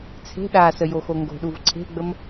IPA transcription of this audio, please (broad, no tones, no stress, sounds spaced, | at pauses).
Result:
t͡sʰ e̤ ɗ a s ə j o x o ŋ ɡ o̤ ɗ u v ǀʰ e̤ ɡ͡b ə m